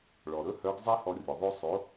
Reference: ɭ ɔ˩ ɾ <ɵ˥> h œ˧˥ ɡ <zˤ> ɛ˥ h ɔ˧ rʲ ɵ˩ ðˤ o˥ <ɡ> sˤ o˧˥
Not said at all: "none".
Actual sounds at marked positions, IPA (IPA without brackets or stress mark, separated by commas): ɵ˥, zˤ, none